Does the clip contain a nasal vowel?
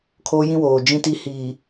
yes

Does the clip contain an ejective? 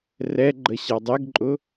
yes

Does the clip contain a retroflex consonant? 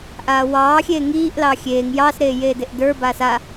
no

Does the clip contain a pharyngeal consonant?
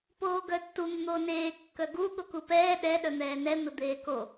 no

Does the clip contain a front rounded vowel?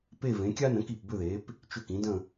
yes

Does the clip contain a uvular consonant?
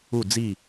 no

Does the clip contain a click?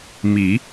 no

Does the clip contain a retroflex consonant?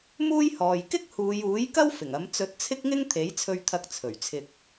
no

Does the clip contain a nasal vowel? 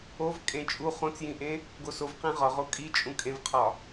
yes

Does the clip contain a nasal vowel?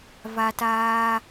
no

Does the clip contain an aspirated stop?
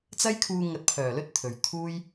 yes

